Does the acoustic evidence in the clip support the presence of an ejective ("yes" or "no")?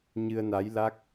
no